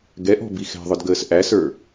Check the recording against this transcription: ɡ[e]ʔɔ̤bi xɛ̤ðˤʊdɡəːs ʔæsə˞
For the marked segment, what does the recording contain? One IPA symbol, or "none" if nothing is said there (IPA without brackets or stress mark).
ɛ